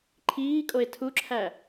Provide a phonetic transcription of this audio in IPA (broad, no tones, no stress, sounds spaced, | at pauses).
ǃʰ iː kʼ o e̯ tʰ u ǁʰ æ